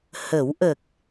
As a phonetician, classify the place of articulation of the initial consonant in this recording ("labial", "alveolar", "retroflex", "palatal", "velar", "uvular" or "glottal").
glottal